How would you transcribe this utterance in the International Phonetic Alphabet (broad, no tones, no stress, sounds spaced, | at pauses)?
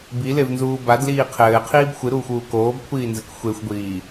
b i l e v n z uː b a d l iː qʰ ɘː qʰ iː b xʷ ɨ ɾ uː xʷ uː k oː b kʷʰ iː n z ɘ k xʷ e xʷ ɡʷ iː